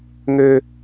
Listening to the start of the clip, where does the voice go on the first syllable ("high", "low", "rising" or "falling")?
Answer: high